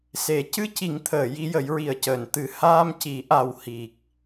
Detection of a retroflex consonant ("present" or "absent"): absent